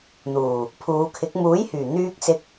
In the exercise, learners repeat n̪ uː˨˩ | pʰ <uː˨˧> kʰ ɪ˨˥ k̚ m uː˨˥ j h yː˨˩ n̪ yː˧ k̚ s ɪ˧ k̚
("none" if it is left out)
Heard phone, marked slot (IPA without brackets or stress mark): uː˨˧